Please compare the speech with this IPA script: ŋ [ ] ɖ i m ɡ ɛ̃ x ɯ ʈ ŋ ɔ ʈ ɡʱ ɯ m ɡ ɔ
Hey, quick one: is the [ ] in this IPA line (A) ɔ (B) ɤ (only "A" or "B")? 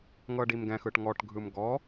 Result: B